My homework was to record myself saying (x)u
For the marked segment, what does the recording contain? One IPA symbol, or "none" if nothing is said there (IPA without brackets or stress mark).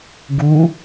ɡ